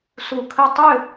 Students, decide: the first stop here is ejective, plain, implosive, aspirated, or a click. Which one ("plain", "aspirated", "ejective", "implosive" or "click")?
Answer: aspirated